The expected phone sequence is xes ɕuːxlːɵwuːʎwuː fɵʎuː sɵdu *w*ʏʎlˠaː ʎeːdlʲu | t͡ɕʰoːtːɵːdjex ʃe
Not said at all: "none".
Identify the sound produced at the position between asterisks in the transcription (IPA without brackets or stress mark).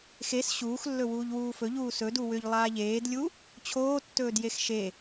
w